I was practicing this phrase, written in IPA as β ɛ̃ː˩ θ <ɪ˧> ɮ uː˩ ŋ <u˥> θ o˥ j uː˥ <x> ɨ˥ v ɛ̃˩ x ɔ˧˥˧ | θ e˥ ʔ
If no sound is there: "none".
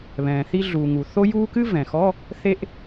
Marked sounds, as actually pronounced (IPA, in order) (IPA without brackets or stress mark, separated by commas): i˧, u˩, k